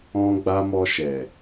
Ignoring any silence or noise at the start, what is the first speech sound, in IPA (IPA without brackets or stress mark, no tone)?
ɔ̃